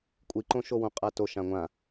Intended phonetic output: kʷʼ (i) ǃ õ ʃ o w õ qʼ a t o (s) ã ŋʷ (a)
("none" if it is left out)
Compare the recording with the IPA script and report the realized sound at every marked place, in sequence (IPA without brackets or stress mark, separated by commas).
i, ʃ, ã